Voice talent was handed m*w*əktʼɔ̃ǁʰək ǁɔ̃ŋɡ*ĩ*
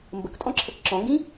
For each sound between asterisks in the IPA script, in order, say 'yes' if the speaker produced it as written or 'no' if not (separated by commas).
no, yes